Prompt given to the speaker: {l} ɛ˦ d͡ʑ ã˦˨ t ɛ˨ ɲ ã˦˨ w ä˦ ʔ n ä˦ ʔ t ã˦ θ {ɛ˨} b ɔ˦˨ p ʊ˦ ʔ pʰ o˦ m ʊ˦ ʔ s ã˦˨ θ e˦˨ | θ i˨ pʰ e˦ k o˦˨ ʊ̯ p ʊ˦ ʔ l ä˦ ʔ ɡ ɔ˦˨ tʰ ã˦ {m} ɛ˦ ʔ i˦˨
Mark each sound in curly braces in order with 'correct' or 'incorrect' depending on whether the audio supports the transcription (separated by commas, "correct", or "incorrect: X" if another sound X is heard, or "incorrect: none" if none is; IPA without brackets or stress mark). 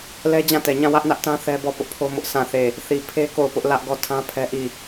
correct, incorrect: ɛ˦, incorrect: pʰ